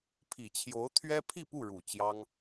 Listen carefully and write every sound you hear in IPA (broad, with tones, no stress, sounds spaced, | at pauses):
pʰ i˨˩ t͡ɕʰ j o˧˥ ʊ̯ t̪ʰ ɥ ɛ˥ pʰ i˥˧ p u˥˩ ɻ u˨˩ t͡ɕ j ɑ˥ ŋ